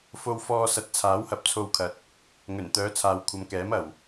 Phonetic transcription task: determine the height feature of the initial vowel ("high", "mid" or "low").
mid